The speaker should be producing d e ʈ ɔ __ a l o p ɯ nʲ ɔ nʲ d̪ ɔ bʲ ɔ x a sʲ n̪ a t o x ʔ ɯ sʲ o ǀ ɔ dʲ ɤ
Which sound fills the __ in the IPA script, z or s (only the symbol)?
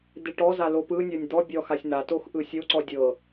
z